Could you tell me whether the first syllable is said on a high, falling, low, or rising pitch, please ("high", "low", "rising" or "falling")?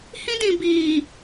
high